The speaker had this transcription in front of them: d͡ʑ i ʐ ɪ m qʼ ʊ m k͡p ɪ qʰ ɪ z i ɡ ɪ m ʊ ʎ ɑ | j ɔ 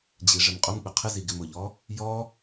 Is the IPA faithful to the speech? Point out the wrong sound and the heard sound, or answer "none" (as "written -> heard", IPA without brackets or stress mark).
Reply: ɑ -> ɔ